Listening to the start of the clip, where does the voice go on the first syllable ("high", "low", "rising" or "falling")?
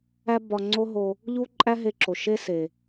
high